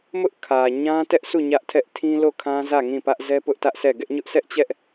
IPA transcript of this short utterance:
m ʊ˦ ʔ kʰ ä˨ ɲ ã˦ t ɛ˦ ʔ sʰ u˦˨ ɲ ä˦ ʔ tʰ ɛ˦ ʔ tʰ ĩ˦ l o˦˨ kʰ ã˦ z ä˦˨ ŋ ĩ˦˨ p ä˦ ʔ z ɛ˦ p ʊ˦ ʔ t ä˦ ʔ s ɛ˦˨ ɡ ɛ˦ ʔ ɲ ʊ˦ ʔ s ɛ˦ ʔ t͡ɕ ɛ˦ ʔ

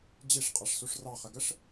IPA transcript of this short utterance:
d͡ʑ i ʂ qʼ a ʂ s u ʂ r ɑ χ ə ɡ ə ʂ

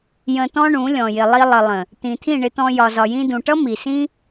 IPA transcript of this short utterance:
j ə̃˧ t̪ ɔ̃˦ ɳ ũ˨˦ lʲ ɔ̃˨ j ɪ˨ lˠ i˧ lˠ ə˨ lˠ ə̃˨ | t̪ ĩ˨ t̪ʰ ĩ˦˨ ɳ ɪ˧ t̪ ɔ̃˧ j ɒ˨ z ɒ˨ j ĩ˧ d ũ˨ ʈ ʌ˦ m i˨ s ĩ˦

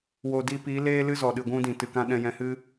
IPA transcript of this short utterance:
w o˨ d i˧ p i˨˦ l eː˦ l ɨ˦ z ɔ˨ ɗ ɨ˨ ɡʷ ũ˧ d ĩ˨ t ɨ˨ k ã˧ ɗ ɛ̃˧ j ɛ̃˧ h ɨ˦

